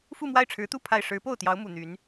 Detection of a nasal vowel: absent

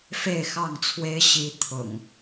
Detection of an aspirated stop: present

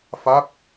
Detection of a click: absent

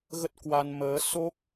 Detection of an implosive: absent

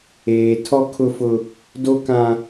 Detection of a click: absent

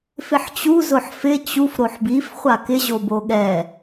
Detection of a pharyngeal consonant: present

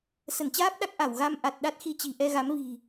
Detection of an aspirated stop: absent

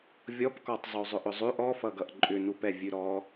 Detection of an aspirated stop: absent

